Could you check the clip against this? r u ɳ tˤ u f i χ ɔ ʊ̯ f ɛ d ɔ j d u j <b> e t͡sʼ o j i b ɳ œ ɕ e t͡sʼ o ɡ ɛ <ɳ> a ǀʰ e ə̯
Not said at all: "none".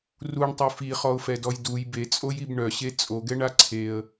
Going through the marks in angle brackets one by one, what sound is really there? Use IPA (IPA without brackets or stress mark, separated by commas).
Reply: b, ɳ